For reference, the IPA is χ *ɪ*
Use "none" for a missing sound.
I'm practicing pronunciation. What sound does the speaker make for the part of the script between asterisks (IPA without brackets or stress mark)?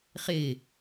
ɪ